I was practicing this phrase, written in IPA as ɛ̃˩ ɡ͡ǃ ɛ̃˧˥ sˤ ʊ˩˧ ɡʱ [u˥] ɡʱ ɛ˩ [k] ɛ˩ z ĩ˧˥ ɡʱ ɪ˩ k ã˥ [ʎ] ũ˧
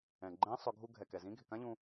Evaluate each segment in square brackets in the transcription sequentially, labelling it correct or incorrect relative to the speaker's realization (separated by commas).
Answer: incorrect, correct, correct